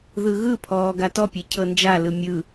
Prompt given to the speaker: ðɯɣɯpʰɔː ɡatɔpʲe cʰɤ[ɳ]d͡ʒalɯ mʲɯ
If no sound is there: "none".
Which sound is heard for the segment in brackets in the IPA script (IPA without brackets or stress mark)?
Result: n